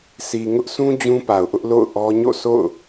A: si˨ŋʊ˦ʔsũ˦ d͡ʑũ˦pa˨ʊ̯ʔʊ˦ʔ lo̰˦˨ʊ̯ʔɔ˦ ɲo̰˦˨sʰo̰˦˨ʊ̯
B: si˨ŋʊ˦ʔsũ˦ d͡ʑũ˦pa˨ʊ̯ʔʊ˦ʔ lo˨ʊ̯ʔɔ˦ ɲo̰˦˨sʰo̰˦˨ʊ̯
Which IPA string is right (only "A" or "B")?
A